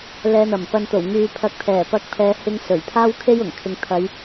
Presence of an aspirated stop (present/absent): present